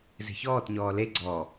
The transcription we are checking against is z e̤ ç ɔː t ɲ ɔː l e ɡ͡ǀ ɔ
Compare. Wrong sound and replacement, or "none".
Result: none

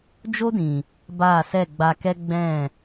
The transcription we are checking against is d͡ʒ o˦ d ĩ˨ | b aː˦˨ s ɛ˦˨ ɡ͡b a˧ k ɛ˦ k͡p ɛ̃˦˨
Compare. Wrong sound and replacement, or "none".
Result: k͡p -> ɡ͡b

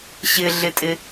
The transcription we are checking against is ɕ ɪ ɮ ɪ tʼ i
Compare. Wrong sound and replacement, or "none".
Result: i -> ɪ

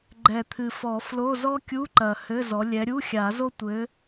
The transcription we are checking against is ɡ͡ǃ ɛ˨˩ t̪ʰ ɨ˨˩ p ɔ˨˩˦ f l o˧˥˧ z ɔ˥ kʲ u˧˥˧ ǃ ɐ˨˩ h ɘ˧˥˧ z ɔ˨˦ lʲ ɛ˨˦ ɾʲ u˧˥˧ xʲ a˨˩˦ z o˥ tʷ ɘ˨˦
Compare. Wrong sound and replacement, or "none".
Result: p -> f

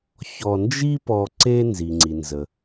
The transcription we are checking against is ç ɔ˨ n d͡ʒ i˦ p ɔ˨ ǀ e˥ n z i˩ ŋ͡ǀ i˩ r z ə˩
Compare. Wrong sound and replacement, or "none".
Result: r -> n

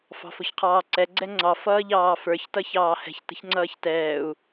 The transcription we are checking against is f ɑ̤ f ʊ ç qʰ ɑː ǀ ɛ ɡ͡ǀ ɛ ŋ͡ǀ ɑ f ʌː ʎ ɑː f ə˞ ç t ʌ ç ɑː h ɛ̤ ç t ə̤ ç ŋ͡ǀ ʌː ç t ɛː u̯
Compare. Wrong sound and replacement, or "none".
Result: none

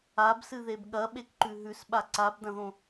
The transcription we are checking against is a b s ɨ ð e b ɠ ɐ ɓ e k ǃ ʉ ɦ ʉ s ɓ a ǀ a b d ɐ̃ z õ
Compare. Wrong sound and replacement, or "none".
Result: z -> ð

